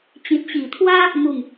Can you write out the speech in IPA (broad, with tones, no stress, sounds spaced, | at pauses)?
t͡ɕ ĩ˨ t̚ ɕ i˨˩ t̪ʰ w a˦ | m u˥˧ ŋ